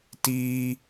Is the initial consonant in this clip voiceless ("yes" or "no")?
yes